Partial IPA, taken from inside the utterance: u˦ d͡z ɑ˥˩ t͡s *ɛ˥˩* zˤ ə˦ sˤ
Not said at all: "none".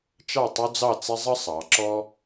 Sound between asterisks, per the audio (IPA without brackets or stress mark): ɛ˦